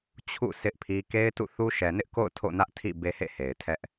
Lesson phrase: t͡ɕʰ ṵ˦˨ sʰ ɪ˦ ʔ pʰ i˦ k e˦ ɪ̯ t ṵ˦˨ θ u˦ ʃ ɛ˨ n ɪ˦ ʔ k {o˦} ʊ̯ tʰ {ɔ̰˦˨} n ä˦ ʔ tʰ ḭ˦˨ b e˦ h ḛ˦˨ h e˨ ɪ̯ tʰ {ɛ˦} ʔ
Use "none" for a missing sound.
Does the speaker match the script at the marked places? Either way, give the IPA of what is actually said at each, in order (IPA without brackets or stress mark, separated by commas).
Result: o̰˦˨, o̰˦˨, ɛ˦